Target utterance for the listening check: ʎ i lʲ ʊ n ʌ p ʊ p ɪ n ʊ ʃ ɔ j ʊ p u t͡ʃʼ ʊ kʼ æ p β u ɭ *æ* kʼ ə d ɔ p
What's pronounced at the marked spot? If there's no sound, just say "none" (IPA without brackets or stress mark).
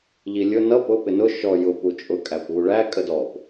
æ